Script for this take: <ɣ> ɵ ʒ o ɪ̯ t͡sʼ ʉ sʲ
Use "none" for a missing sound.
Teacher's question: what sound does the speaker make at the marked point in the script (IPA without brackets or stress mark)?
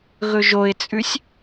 ɣ